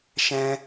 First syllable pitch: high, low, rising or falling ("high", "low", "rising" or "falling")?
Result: high